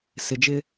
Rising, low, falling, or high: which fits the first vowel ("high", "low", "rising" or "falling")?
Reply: low